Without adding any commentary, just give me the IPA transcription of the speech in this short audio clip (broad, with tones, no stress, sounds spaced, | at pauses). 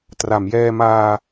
t r a˩˦ m j ɛː˧ m aː˧